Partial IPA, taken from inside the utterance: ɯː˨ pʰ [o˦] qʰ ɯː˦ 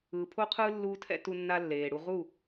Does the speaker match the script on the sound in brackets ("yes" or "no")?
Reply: yes